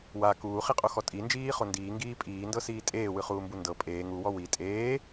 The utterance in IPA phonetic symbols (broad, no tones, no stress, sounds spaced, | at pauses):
w a k uː χ i qʼ o x ɔ tʼ i n d͡ʒ iː χ o n d iː ŋ ɡ iː pʼ iː n d ɤ s iː tʼ eː w ɯ χ uː m b u n d ɤ pʼ eː ŋ u w ɔ w i tʼ eː